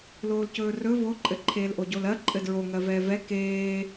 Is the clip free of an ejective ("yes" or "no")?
no